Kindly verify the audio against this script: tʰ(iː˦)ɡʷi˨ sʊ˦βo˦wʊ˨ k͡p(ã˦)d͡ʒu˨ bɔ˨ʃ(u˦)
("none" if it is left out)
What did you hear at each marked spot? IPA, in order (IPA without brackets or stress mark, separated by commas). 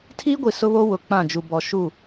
iː˦, ã˦˨, u˦˨